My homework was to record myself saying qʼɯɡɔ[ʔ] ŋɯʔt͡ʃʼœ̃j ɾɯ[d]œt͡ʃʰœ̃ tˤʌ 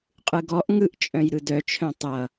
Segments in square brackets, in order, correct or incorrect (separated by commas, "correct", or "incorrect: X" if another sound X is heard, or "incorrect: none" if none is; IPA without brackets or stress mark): correct, correct